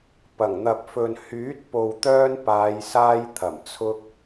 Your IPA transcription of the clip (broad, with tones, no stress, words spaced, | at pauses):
pɐ˨˩ŋn̪ɐ˨p̚fɵ˨n hyː˨˥t̚po˨wt̪œː˧n paː˨˧jsaː˧j t̪ʰɐ˨˩mt͡sʰʊ˧k̚